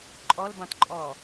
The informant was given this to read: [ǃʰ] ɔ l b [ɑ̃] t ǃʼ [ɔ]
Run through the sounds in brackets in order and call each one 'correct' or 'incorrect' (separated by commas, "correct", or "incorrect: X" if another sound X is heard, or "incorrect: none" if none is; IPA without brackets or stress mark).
incorrect: ǃʼ, correct, correct